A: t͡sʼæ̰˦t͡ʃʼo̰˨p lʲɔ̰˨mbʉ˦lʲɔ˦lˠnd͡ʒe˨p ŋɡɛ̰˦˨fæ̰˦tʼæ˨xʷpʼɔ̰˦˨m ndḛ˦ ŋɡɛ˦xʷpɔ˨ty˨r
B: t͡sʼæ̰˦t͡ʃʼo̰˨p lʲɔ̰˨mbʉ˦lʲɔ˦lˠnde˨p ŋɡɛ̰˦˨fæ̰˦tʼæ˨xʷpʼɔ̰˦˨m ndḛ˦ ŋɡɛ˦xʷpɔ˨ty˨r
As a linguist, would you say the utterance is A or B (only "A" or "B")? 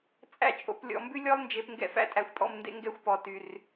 A